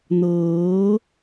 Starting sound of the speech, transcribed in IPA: n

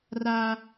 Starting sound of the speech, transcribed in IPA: r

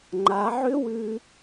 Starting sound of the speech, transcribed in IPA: ŋ͡ǃ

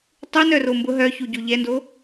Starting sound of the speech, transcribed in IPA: tˤ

